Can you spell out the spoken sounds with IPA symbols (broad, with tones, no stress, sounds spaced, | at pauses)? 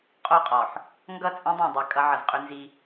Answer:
qʼ o˦˨ qʼ ɔ˨ ħ | ŋ ɡ ʌ˦˨ t͡sʼ ẽ˦ dˤ ẽ˨ dˤ ɛ˨ kʼ ʌ˦ ʕ ʌ˨ z qʼ ʏ˦ n z i˦